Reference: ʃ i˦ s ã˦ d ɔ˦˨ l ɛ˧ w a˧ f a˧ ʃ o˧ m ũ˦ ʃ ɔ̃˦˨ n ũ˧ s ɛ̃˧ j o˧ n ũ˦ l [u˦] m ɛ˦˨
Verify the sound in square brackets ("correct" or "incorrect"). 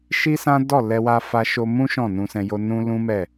incorrect